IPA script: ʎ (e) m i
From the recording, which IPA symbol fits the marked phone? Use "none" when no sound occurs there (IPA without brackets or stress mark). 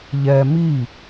ɛ